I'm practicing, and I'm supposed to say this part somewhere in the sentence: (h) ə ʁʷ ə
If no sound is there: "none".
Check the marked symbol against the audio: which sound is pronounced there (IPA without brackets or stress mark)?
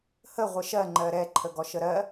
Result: h